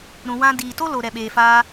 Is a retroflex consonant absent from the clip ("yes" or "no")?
yes